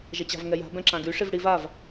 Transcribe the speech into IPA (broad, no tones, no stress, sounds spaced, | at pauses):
ʒ ɛ t͡ɕ a̤ v ŋ ɛ j a̤ b ɛ̃ ǁ ã ɡ y ʂ i v ɽ i v a v